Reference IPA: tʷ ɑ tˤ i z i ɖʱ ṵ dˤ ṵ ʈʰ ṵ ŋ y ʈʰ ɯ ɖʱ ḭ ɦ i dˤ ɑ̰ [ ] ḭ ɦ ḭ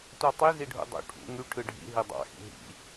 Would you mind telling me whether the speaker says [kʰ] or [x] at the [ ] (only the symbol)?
x